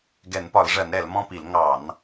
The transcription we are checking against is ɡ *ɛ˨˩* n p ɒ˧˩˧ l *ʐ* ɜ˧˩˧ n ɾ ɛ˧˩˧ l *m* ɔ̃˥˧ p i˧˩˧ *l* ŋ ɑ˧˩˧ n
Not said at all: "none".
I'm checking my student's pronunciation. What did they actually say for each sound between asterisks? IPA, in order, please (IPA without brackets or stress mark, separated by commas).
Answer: ɛ˧˩˧, ʐ, m, l